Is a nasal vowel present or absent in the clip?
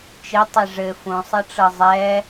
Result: present